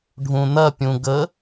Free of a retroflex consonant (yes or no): no